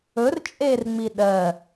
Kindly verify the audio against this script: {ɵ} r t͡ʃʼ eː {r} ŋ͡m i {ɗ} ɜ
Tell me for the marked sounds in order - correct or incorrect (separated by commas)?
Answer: correct, correct, correct